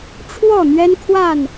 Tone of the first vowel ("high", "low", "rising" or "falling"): falling